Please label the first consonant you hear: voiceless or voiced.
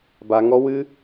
voiced